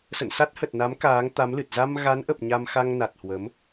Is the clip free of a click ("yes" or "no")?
yes